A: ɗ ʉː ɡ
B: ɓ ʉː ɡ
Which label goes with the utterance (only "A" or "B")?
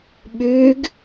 B